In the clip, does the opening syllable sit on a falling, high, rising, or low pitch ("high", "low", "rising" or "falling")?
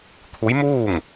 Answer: rising